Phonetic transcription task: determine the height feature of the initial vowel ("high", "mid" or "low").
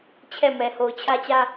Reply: mid